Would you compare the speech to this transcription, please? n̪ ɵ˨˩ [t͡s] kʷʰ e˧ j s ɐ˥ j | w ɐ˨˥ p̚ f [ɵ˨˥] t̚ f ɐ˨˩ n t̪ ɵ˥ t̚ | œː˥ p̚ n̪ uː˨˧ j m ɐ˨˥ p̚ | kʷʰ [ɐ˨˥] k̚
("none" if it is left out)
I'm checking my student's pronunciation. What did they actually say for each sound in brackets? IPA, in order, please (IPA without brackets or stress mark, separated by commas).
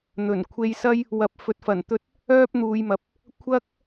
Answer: n, ɵ˨˥, ɐ˥